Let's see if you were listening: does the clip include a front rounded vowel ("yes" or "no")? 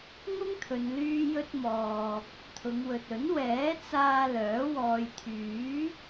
yes